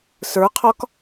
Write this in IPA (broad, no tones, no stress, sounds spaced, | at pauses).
s ə˞ qʰ ɒ k